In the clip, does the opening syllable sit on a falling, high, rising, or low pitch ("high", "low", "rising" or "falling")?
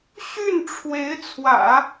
falling